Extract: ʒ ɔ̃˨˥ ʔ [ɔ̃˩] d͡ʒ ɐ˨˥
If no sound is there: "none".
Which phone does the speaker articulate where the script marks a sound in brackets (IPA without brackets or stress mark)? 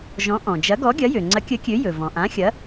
ɔ̃˩